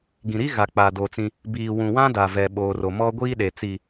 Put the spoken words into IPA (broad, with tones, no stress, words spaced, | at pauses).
ɡĩ˨ɾi˦ɣa˨ k͡pa˨do˨t͡sĩ˦ | biː˨wũ˨wã˦da˨ vɛ˨ɓo˨ro˨ mɔ˦ɡʷiː˦ɗe˨t͡si˨